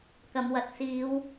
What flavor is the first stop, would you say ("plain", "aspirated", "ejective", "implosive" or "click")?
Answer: plain